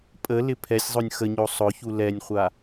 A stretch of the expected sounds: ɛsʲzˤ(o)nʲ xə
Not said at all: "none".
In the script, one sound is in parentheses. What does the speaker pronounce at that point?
o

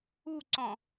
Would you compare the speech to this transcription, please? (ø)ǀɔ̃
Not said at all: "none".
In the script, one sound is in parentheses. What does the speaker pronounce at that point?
u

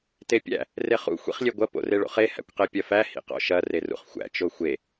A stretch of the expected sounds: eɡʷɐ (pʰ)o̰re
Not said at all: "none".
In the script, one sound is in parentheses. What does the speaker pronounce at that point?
p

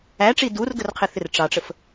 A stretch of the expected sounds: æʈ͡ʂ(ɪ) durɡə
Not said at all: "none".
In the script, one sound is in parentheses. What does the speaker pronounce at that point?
i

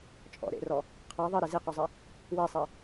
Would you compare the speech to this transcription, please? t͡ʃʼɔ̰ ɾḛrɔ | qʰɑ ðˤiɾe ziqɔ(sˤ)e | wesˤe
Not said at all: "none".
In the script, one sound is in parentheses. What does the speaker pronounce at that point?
zˤ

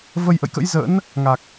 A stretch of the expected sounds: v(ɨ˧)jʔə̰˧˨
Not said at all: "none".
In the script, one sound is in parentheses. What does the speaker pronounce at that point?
ə˧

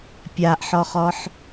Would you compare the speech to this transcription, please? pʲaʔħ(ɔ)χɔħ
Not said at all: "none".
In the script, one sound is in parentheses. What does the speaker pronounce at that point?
ɔ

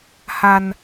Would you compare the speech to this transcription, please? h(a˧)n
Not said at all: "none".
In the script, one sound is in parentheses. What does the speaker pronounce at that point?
a˧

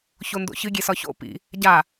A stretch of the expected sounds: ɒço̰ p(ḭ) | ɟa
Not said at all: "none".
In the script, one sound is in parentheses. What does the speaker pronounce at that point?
ḭ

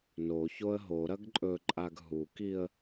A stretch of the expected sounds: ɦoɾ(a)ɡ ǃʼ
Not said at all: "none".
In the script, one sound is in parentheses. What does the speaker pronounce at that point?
ɐ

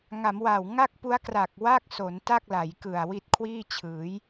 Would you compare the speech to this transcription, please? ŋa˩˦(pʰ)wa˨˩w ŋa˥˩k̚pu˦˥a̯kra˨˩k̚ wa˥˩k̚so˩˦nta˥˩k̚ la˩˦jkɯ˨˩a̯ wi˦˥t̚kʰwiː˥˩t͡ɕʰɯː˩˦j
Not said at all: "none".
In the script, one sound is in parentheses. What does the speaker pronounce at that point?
m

